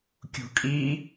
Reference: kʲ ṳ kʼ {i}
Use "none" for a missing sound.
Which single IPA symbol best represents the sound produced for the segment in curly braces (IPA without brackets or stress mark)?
i